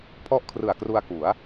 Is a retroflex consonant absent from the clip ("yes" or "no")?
yes